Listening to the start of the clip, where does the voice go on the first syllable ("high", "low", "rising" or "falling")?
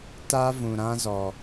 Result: high